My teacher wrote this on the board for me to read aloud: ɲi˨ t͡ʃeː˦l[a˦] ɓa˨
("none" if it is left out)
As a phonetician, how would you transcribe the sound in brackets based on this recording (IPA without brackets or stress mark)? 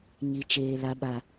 a˦